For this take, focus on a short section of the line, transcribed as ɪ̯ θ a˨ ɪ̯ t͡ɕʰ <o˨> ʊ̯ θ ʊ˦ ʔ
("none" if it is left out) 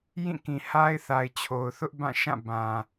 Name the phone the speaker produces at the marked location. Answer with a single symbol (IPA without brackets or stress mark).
o˨